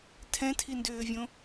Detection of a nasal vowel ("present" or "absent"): present